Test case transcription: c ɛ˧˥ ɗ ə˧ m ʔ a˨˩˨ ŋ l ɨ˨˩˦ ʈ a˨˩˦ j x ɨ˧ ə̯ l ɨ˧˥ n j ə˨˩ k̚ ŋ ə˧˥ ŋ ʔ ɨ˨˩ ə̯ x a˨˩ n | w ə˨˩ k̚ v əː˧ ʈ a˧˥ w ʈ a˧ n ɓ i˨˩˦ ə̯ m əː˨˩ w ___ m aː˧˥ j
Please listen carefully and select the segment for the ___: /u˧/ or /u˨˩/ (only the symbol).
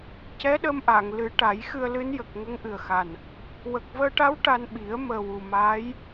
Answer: u˨˩